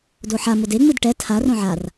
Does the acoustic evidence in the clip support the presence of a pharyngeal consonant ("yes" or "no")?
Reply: yes